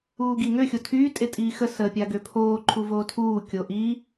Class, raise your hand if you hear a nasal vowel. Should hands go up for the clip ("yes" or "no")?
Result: no